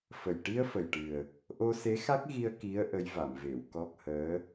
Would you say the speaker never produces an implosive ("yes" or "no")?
yes